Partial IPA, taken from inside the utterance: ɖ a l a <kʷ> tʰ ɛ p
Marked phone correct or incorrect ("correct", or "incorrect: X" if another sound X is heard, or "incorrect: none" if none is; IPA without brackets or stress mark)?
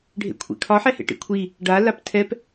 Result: incorrect: p